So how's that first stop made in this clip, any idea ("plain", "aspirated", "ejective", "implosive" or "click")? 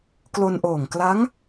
plain